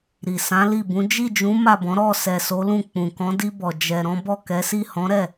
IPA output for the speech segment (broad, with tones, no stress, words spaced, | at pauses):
ɾi˨ sã˨˦li˦˨bũ˨˦ d͡ʒi˦˨d͡ʒũ˨˦ ma˦˨bɔ̃˨˦ ɾɔ˦˨ sɛ˨so˨˦lũ˦˨ k͡pũ˨kɔ̃˨˦di˧bɔ˨ d͡ʒɛ˨ ɾɔ̃˨˦bɔ˦˨kɛ˨˦si˦˨ hɔ̃˨˦ɾɛ˦˨